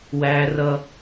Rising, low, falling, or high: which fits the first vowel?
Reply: high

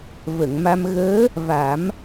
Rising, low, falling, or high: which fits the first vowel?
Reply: low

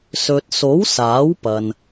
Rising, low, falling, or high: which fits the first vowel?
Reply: low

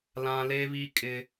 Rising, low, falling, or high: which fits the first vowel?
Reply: high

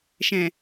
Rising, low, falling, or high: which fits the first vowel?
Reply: low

